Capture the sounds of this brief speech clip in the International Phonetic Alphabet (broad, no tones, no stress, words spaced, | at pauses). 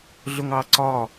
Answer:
ɮʊŋɑǀɒ